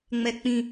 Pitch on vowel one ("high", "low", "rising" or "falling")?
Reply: high